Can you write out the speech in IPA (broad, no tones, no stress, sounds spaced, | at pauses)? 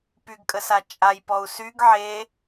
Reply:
p y ɡ kʼ ə s a t͡ʃʼ a j p ɔ u̯ s y ɡ ʕ e